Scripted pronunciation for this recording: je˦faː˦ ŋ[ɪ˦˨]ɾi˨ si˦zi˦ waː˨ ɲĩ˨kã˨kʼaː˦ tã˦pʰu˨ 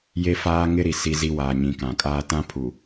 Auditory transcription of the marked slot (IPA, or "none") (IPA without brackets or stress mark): ɪ˦